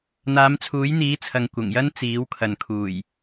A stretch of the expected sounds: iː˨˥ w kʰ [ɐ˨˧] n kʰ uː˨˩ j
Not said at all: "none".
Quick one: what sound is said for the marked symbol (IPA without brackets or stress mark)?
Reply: ɐ˨